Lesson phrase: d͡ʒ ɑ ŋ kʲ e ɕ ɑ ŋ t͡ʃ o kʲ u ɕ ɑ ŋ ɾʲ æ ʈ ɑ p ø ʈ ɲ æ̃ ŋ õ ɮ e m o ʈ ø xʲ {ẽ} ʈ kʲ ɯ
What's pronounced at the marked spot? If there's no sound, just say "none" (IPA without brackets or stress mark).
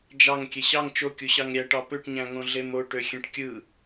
ẽ